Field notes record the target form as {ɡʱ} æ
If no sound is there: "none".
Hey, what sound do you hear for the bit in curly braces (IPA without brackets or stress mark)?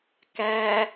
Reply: k